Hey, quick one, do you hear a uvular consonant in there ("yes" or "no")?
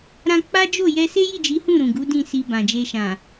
no